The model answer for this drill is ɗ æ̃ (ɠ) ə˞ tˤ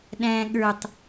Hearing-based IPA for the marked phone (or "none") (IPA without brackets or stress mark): ɠ